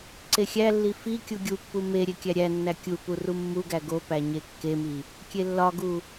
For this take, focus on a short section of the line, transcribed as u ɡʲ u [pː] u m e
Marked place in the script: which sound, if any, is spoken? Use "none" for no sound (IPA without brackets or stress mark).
pː